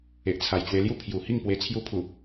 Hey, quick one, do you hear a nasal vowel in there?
no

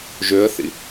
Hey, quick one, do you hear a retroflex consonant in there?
no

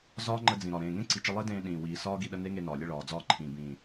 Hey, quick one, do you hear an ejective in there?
no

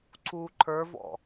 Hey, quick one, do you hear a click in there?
yes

